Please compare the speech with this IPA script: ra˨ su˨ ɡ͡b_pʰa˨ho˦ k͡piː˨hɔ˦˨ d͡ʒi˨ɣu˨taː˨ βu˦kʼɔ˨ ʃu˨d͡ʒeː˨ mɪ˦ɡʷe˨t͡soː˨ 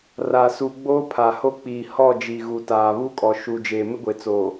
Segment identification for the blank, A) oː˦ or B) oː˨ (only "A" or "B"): A